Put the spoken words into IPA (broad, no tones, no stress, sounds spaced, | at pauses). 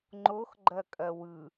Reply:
ŋ͡ǃ o x ɡ͡ǃ ɐ kʼ ɐ w ɯ